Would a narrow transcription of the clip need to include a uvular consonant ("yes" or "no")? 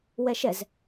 no